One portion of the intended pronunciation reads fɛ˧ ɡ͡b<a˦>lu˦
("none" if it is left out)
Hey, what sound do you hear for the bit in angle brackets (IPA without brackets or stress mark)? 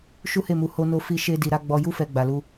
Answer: a˧